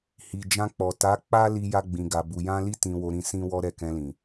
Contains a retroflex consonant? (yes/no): no